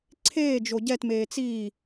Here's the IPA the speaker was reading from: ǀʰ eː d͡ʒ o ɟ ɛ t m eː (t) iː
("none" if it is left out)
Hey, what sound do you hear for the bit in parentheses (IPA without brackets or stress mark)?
t͡s